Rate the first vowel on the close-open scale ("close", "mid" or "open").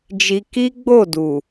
close